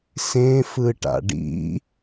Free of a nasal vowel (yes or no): no